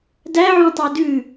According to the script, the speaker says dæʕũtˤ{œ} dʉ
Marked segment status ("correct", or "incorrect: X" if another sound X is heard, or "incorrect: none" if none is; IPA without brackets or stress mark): correct